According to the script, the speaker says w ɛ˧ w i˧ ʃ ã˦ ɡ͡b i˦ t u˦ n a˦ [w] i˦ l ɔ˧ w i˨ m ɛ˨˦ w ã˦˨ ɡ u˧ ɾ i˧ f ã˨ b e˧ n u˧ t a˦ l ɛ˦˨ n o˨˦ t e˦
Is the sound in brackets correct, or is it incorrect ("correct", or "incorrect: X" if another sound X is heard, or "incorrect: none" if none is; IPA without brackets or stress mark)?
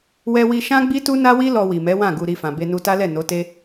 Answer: correct